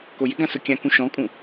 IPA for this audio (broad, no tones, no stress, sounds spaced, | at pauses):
k o j ɪ ɡ ã s ʊ kʲ ã k ũ ʃ ɔ̃ kʼ ũ